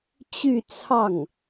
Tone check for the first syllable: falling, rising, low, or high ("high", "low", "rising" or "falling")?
falling